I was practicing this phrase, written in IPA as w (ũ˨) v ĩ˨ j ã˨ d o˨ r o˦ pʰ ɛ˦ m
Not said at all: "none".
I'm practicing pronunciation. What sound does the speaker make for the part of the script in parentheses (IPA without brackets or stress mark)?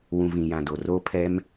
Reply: ũ˨